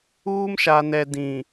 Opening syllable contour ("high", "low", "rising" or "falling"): high